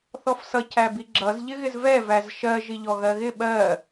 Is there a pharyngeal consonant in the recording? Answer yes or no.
no